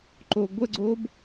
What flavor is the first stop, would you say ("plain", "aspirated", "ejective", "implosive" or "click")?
click